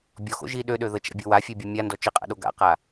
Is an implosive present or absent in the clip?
present